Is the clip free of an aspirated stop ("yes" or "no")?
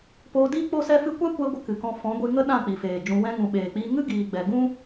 yes